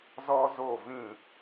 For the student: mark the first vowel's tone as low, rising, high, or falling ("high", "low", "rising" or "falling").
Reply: high